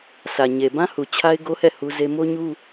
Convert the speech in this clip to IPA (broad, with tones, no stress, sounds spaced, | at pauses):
sʰ ä˨ ɲ e˨ b ã˦ h u˨ t͡ɕʰ a˦ ɪ̯ ɡ o˦ h ɛ˦˨ h u˦ z e˦ m o˦ ɲ u˦